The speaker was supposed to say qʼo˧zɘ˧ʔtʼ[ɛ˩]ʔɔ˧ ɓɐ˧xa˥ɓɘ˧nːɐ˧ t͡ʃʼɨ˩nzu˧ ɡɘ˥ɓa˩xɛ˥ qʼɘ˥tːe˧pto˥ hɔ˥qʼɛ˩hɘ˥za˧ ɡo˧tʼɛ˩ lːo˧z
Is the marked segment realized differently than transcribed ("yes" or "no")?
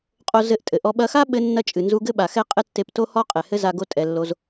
yes